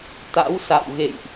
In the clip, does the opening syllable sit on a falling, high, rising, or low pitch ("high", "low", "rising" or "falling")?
rising